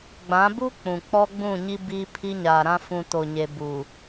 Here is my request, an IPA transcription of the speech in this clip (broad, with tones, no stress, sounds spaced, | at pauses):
ɡ͡b ã˨˦ b u˦ k͡p ũ˨ k͡p ɔ˦ ɡ͡b ũ˦˨ ɲ i˦ b iː˦ pʰ i˦ ɲ aː˨ ɾ ã˦ f ũ˨ t o˨ ɲ e˨ b u˨